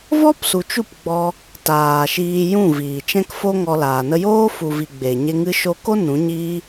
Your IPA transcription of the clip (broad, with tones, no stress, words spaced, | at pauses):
vɔ˦psu˨t͡ʃu˦˨p ɡ͡bɔ˧ | taː˨ʃiː˧ jũ˦˨viː˨t͡ʃɛ̃˦kfo˦ ŋɔ˧laː˨ nə˧joː˦ fu˨vi˨ ɡ͡be˨ɲe˧ ŋɨ˧ʃo˧ko˦ nũ˨˦ɲiː˦